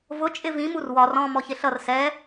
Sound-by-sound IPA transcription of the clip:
v ʊ t͡ʃʼ ɪ v ĩ m u r w ɒ r ɔ̃ m ɔ ç ɪ ɬ ʌ r s ɛ

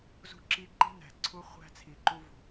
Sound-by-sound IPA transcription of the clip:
z ṳ˦ ǁ i˦ ǃ i̤˦ n æ̤˨ ǀʰ u˦ χʷ æ̤˦ t͡sʰ i˨ ǃ u˦ v ṳ˨

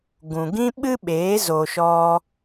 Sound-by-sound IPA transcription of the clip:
ɡ ũ˨ ɡ ĩ˦ ɓ ɨ˦ ɓ eː˨˦ z o˧ ʃ ɔ˦

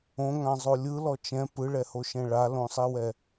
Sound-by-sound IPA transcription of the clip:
õ ŋ ã zˤ o lʲ ɯ l ɔ t͡ʃ ɛ̃ p ɯ ɭ ɛ h o ʃ ɛ̃ ɭ a l õ sˤ i w ɛ

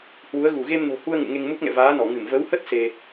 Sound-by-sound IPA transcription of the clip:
h w u˨˦ ə̯ ɣ u˧˩ ɣ e˧ m n o̤˨˩ h u˧ ə̯ ŋ ṵ˧˨ ŋ e˧ ŋ m u˦˥ k̚ ŋ ɛ̰˧˨ v aː˨˦ n ɔ˧˩ ŋ ɨ˧˩ m v ə˨˦ w h ə˦˥ t̚ s e˧

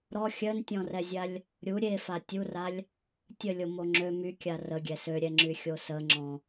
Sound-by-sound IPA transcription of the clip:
ɾ ɔ xʲ œ n tʲ ɔ̃ r ɛ zʲ a lʲ | ɾʲ u ɾʲ e f a tʲ u r a lʲ | tʲ ə lʲ o m o ŋ͡ǁ ø m y kʲ a r ə ɡʲ ɛ s ø ɾʲ ɛ ŋ͡ǁ y xʲ o s ə ŋ͡ǁ ɔ̃

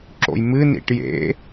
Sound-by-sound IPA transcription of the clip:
ǁ o̰ j m ɨ n ḭ ʈ j ḛ

